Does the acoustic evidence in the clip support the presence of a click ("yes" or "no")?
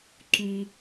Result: yes